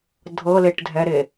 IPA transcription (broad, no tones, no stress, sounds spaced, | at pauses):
dʱ ɤ l e ʈ dʱ ɛ ɾ e